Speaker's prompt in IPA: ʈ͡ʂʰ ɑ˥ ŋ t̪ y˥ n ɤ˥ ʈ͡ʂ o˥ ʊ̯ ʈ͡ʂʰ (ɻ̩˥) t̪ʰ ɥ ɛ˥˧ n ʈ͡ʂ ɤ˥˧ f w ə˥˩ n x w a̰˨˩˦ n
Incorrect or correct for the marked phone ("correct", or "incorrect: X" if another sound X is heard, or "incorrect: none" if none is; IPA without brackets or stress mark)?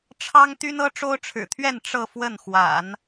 incorrect: ɻ̩˨˩